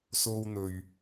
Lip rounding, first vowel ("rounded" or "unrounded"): rounded